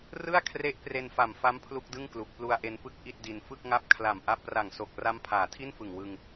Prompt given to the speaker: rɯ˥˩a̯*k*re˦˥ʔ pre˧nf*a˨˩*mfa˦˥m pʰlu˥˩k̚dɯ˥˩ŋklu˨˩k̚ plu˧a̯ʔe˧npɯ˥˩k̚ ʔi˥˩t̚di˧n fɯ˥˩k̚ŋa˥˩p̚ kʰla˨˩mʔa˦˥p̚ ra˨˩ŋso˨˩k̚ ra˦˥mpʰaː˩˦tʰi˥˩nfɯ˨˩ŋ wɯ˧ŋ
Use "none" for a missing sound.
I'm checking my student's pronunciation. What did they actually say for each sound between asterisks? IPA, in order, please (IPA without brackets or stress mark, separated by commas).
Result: kʰ, a˨˩